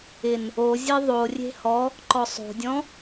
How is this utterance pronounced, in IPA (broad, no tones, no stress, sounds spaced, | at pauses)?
ɪ n | o zʲ e ðˤ o rʲ e̤ h ɔ | ǃ ɔ sˤ o̤ dʲ ɔ̃